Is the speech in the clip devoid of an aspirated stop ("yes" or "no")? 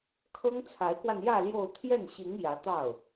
no